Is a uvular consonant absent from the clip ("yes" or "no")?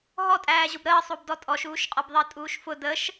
no